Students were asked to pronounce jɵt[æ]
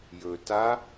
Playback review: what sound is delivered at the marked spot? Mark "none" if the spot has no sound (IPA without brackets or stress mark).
a